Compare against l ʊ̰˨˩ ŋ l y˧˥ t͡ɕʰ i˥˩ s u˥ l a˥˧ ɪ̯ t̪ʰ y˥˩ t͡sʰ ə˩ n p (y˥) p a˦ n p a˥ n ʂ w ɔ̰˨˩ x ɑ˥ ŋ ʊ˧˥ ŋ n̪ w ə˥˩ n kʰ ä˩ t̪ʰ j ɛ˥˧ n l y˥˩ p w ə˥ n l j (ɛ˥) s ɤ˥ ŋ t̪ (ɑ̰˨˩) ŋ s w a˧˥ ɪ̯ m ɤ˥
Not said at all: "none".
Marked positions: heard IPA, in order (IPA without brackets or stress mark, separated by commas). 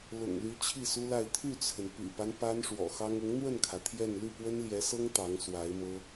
y̰˨˩, ɛ˧˥, ɑ˧˥